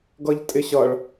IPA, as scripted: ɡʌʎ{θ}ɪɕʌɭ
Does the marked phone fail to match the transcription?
yes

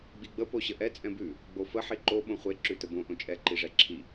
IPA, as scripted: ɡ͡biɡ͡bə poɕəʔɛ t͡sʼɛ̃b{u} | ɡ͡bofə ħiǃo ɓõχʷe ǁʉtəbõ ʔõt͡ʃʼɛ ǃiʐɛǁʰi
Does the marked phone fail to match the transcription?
yes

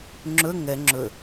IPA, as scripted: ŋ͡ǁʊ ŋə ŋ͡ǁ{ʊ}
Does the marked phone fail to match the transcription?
no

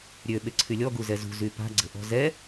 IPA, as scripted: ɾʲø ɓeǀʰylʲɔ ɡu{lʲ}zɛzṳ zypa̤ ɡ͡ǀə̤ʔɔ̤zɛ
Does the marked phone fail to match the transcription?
yes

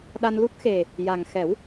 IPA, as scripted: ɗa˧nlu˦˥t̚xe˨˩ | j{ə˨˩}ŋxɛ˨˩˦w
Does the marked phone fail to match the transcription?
yes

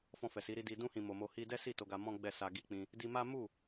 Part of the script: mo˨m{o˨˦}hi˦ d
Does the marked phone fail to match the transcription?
yes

